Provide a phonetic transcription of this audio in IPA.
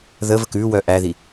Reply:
ð ə v ə k ʉ w œ ʔ æ ð i

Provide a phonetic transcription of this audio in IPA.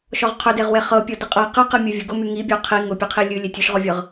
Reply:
ʃ ɔ ʁ qʰ ʊ d e ʁ w e χ ɤ pʲ ɔ d ɨ qʼ ɤ q ɨ q ɨ mʲ ʊ vʲ ʊ ɡ ʊ m y ŋ i bʲ ɔ qʰ i ŋ ʊ pʲ ɨ qʰ i lʲ ɨ lʲ e tʲ ʊ ʃ ʁ ɔ vʲ ɤ ʁ

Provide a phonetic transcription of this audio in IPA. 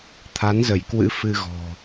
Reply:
t̪ʰ a˨˦ n z ə˧˩ j k w ɨ̰˧˥ f ɨ˧ ɣ ɔ̤˨˩

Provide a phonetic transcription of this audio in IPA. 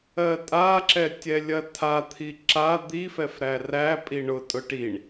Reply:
ɜ tʼ a ǁ ɛ tʲ ɛ lʲ ɐ tʰ a t̪ʰ i ǁ a d̪ i f ɛ f ɾ æ r æ pʼ i ɳ ʊ tʼ ʊ ʈ i ɳ

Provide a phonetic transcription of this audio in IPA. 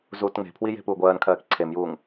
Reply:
z uː t ŋ͡m e̤ pʰ w i j e̤ p uː ɡʷ ɜː n kʰ ɜː k ǀʰ e m j uː ŋ

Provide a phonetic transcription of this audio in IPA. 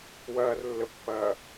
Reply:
w ɐː r lː ə pː ɐː

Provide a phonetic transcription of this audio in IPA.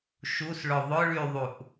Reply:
ʃ u s ɭ ʊ ðˤ ʊ ɭ y ðˤ u ʔ

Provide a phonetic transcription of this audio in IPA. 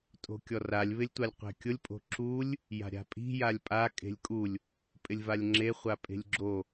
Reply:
tʼ o̤ kʲ ɔ r a lʲ β ɪ lʲ tʷ a lʲ qʷ ɛ̤ kʲ ʊ lʲ pʼ o̤ ǁ u lʲ | j a̤ ɾʲ a̤ pʼ i̤ j a lʲ pʼ a kʼ e̤ lʲ kʼ u lʲ | pʼ ɪ lʲ v a lʲ ŋ͡ǁ e χʷ a pʼ e̤ lʲ ɡ͡ǁ o

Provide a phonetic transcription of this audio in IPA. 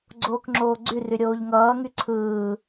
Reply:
ɡ͡ǀ oː k ŋ͡ǁ oː ɡ͡ǀ y r y ɾʲ oː ʎ ŋ ʌː ŋ y ǀʰ ɯː

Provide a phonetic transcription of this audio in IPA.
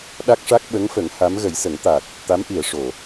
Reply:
ɗ a˦˥ k̚ ʂ a˦˥ k̚ ɓ ə˧˥ ŋ f ə˨˩˦ ŋ h a˧˥ m ɣ ə˨˩˦ j s ə˨˩˦ ŋ t̪ a˨˩ t̚ | t̪ a˧˥ m ʔ i˨˩˨ ə̯ ʂ o˨˩˨

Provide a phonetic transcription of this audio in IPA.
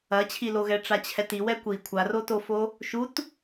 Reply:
ɐ t͡ɕʰ i l o ɣ ɛ ʈ͡ʂ a t͡ɕʰ ɛ t i w ɛ kʷ i kʷʰ a r o t o f o | ʃ u t

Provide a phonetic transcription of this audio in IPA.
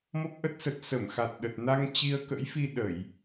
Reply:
m ɔ˦˥ p̚ ʔ ə˦˥ t̚ s ə˨˩ t̚ s ə˧˩ m x a˨˩ t̚ ɗ ə˨˩ t̚ n a˧ ŋ t͡ɕ i˧ ə̯ k ə̰˧˥ j f i˧ ɗ ə˧˩˨ j

